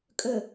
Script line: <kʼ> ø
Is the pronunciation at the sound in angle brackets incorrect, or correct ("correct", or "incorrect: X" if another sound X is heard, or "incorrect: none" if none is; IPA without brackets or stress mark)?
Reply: correct